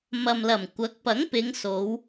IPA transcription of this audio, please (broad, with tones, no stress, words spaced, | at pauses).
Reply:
mɐ˨mlɐ˨˩m kʷɐ˨˥k̚ pɐ˨˥ŋpɪ˨˧ŋso˨˧w